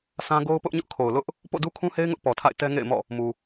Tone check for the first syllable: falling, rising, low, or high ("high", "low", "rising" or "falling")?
high